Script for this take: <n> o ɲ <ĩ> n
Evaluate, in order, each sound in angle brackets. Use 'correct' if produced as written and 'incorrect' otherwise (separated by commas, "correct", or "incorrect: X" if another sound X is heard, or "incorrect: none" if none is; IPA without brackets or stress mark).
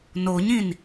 correct, correct